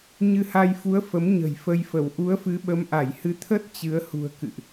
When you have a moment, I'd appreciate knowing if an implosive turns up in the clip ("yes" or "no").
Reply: yes